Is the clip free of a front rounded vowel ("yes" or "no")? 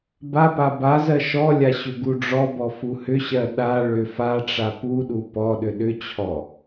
no